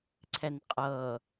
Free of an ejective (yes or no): no